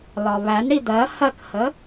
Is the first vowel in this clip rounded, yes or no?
yes